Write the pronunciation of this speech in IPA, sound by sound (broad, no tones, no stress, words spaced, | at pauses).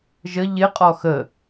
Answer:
ʒə ʎɪqʼɔ xə